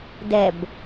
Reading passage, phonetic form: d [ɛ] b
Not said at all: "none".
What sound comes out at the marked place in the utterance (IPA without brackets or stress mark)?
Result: ɛ